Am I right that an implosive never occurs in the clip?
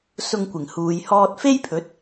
yes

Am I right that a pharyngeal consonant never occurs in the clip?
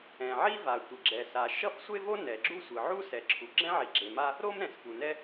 no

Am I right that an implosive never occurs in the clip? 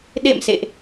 no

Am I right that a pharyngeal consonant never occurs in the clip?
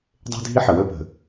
no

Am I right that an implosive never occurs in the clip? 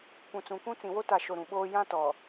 no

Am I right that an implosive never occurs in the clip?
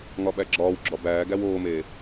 no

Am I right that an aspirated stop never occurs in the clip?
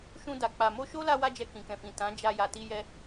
yes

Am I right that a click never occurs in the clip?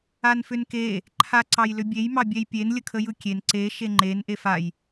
no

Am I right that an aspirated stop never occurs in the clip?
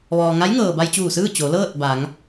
yes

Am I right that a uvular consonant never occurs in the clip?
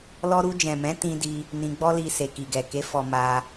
yes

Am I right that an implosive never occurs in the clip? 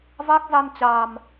yes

